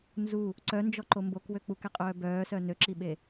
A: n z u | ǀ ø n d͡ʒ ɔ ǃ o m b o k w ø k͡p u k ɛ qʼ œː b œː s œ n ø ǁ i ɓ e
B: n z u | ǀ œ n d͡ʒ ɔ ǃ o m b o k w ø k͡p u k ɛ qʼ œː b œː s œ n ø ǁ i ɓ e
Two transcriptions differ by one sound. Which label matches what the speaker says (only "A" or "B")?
B